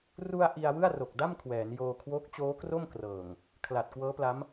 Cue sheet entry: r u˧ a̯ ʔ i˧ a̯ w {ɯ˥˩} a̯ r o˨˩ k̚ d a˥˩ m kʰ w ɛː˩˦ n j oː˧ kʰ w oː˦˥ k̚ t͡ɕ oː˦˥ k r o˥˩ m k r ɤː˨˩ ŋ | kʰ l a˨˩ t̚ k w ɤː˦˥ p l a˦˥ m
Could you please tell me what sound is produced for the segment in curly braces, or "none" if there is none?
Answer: ɯ˥˩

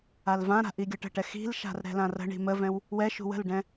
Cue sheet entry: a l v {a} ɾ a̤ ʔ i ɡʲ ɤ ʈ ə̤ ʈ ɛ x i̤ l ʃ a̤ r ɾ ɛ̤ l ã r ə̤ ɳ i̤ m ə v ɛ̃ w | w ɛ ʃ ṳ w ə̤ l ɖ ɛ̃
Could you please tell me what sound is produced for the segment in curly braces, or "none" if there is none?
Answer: ã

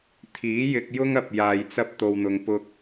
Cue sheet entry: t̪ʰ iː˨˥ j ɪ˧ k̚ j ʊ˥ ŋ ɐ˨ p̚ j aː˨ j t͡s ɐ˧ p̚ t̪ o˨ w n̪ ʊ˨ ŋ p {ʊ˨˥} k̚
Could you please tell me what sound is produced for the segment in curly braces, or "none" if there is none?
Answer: ʊ˧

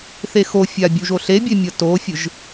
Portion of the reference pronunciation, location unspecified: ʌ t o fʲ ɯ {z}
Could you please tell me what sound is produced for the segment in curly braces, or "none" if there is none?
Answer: ʒ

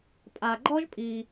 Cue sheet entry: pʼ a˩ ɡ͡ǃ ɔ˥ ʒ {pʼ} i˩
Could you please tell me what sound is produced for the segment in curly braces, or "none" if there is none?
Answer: pʼ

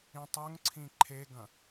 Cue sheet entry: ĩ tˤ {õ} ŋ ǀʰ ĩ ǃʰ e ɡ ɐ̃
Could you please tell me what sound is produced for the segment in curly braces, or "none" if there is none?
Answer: o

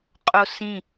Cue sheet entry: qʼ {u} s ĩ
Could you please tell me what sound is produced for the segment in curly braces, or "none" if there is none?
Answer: o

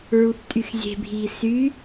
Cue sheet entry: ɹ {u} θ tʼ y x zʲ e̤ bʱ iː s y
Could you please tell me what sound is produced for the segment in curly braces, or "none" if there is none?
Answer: u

